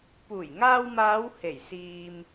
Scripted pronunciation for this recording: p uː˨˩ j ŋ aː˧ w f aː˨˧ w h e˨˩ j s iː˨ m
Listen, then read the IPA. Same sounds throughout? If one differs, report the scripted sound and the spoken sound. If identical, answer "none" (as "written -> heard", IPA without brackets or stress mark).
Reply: f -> m